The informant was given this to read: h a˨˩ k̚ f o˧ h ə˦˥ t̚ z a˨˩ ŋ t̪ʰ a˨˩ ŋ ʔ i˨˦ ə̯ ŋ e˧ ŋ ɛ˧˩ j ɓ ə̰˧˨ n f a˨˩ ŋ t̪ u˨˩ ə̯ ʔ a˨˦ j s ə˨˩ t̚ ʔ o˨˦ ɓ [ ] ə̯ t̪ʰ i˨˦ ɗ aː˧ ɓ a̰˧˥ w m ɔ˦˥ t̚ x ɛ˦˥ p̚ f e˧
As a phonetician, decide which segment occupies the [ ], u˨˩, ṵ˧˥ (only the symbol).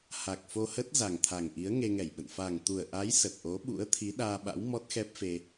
ṵ˧˥